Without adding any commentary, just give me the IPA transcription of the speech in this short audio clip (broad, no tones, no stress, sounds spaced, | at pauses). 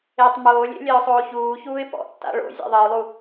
e tˤ m oː lʲ ḛ lʲ ɜ ʊ̯ sˤ oː ç uː ç uː ɪ̯ p ɔ̰ tː a̰ ɭ o̰ zʲ a̰ ðˤ ɜ ʊ̯ lˠ u